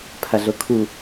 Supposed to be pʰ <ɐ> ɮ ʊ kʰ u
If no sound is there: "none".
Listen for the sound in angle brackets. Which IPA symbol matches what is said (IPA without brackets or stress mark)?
ɐ